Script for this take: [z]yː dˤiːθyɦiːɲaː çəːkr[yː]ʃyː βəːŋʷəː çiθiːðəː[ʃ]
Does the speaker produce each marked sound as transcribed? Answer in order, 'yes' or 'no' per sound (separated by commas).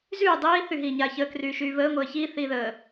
yes, yes, no